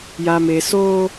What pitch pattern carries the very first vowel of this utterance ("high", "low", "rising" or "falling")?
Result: low